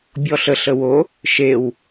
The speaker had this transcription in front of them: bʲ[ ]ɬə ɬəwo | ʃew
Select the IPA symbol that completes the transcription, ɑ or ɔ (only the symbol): ɔ